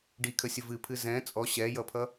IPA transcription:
ɖ i kʰ ə sʲ ə v ɨ pʰ ɨ z ɛ̃ t͡sʼ ɔ ɕ ɛ j ʌ pʰ ʌ

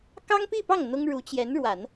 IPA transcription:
k ɑ˥ ŋ p i˥˧ p ɑ˥˩ ŋ n̪ ʊ˥ ŋ ɻ u˧˥ t͡ɕ j ɛ˧˥ n ɻ w a˨˩˦ n

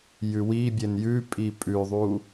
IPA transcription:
j ʉ w i bʲ e n j ʉ pʼ i pʼ ʉ ðˤ u

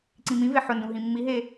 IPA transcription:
ǀ ĩ m ĩ v e ħ ʊ n d ũ ɦ ĩ mː i ɦ e

